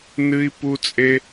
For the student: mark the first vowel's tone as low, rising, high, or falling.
high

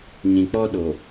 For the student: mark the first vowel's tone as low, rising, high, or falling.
low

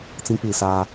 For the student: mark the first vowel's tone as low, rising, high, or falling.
high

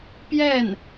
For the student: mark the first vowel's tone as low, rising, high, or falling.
falling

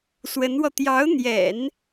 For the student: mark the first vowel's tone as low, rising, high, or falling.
rising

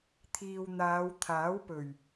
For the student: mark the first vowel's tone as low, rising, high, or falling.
low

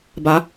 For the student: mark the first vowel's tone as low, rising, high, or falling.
rising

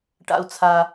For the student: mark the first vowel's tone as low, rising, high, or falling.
low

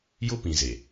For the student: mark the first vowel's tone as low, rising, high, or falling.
high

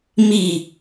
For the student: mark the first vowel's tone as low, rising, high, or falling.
falling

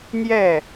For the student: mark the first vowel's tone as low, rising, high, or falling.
falling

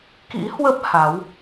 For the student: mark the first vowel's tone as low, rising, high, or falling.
rising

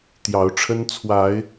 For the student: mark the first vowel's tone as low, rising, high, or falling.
rising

